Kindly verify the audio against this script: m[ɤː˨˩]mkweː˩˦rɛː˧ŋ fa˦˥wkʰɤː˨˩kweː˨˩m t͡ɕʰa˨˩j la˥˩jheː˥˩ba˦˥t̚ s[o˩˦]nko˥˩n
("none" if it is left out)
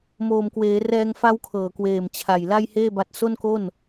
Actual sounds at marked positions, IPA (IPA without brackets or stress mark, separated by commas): oː˨˩, o˥˩